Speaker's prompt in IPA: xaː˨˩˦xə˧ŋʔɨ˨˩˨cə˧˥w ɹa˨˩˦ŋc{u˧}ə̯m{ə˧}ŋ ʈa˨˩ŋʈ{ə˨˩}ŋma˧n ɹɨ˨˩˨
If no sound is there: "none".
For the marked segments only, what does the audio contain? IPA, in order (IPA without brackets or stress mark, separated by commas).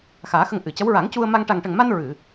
u˧, a˧, ə˨˩